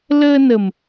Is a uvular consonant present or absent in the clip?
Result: absent